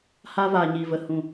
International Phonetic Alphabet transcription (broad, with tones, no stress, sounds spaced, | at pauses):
h aː˧ v aː˨ ɲ iː˨ v ə˨ h ũ˨